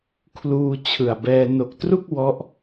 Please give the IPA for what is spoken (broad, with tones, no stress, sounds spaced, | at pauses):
kʰ l uː˧ t͡ɕʰ ɯ˨˩ a̯ b ɛː˧ n o˨˩ k̚ t r u˥˩ k̚ w ɔ˦˥ ʔ